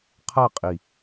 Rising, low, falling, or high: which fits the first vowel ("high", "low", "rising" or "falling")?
falling